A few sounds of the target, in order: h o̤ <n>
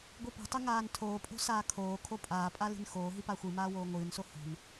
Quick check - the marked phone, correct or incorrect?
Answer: correct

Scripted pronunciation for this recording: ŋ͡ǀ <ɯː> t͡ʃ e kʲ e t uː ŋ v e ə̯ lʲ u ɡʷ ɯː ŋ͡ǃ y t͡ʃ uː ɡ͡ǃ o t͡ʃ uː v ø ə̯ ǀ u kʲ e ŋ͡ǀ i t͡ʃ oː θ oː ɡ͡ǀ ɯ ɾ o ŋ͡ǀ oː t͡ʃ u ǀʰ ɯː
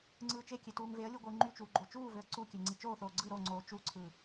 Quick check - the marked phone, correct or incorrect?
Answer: correct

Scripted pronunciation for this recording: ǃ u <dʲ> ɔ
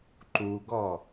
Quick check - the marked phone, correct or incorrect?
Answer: incorrect: ɡ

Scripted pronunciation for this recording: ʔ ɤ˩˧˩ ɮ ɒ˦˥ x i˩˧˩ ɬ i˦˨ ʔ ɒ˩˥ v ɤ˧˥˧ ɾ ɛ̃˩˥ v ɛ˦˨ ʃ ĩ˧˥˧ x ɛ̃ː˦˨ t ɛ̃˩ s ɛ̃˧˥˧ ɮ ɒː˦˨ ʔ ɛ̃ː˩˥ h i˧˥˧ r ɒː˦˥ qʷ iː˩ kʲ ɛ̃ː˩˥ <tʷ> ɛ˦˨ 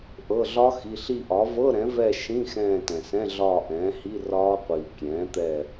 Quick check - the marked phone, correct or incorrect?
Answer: incorrect: t̪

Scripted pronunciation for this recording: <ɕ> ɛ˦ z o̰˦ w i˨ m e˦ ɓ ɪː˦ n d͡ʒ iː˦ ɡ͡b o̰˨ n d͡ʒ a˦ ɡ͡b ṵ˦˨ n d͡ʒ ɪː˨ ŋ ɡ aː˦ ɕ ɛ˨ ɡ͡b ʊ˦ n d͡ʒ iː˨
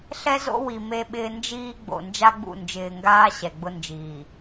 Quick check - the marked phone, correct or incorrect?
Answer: incorrect: ɬ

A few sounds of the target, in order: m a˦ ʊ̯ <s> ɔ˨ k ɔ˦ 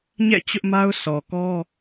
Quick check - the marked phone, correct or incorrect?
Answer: correct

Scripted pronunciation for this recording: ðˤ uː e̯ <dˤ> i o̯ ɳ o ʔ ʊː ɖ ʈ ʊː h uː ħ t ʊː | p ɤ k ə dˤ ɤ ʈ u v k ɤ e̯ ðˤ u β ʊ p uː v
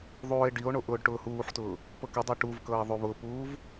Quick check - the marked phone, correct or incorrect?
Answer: incorrect: ɖ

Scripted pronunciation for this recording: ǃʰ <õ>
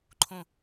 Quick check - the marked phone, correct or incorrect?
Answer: correct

